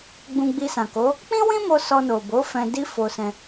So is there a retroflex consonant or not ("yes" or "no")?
no